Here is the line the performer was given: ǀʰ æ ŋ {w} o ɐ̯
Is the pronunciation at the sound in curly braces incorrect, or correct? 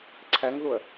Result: incorrect